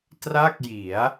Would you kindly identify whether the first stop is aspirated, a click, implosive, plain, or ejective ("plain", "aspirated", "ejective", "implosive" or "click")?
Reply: plain